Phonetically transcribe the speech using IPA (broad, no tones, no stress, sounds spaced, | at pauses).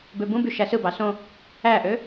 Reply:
b ø b ũ b y ʃ æ s ɯ b ɑ s õ | æ ʔ ø